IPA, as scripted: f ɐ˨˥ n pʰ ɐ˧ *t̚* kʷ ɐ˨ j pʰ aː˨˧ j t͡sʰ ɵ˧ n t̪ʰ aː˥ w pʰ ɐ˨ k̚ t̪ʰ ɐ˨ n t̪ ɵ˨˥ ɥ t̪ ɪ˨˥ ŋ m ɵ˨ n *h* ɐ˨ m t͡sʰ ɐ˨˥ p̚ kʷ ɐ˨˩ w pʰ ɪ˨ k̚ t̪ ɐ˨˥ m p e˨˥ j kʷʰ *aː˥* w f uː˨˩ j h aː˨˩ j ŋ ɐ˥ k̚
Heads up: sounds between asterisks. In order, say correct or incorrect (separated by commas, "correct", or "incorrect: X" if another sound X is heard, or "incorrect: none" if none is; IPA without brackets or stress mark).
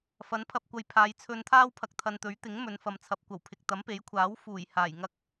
incorrect: p̚, incorrect: f, incorrect: aː˨˥